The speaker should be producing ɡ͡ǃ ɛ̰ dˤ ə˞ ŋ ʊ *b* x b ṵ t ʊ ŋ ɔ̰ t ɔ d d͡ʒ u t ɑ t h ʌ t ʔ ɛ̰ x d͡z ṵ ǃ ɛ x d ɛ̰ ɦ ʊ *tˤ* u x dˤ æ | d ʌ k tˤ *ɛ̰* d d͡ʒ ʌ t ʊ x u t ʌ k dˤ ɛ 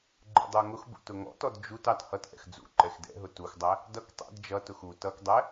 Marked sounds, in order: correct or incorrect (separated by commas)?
incorrect, incorrect, correct